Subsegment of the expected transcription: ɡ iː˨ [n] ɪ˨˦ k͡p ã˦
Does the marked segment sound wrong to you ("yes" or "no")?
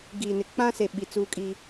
no